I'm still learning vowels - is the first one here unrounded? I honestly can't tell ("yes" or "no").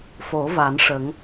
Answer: no